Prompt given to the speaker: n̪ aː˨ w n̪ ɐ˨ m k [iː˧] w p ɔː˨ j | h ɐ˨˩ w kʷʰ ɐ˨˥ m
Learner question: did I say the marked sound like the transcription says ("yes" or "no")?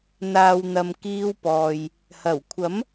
yes